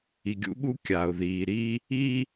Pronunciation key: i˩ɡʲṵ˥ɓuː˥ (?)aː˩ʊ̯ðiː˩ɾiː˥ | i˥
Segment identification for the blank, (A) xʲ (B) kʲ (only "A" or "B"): B